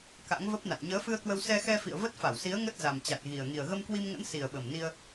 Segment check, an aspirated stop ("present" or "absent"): absent